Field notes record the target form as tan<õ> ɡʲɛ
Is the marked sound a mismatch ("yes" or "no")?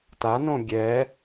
no